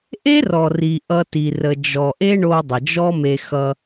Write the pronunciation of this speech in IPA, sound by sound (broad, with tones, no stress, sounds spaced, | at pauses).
ʔ e˦ r ɔ˨ r i˨ ʔ ʌ˦ t i˧ r ə˧ d͡ʒ ɔ˨ ʔ e˦ ɳ o˧ dˤ ə˨ d͡ʒ ɔ˦ m e˧ x ʌ˧